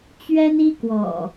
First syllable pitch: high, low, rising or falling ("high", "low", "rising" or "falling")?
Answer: high